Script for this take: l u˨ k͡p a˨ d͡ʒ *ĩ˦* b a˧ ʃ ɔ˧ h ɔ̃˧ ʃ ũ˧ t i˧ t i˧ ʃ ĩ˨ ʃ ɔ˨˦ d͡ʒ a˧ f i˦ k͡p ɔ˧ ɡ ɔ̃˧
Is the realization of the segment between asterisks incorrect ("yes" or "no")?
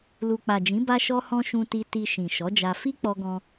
yes